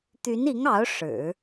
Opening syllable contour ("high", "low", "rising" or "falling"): rising